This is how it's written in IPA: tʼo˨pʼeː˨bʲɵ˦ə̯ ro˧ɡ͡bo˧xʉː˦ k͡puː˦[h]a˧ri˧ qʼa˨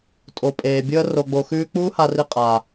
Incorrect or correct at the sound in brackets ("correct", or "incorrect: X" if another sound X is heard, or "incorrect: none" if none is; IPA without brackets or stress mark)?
correct